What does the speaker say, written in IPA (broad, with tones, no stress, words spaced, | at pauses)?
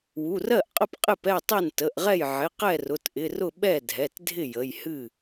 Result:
wu˩˧˩rɜ˥˩ʔqʼə˥˩p qʼɪ˥˩pɛ˥˩tˤɛ˥˩n tə˩˧˩ʔʁɛ˥˩j ʕɪ˩˧˩ qɛ˥˩rʊ˩˧˩tʔɪ˩˧˩rʊ˥˩ ɓɛ˥˩dʱɛ˩˧˩tdʱɪ˥˩ jə˩˧˩jhɨ˥˩